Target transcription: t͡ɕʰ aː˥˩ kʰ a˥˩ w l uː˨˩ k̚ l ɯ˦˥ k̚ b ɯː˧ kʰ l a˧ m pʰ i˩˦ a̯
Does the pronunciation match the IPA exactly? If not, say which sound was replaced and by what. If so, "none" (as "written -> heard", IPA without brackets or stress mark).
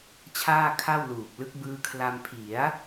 none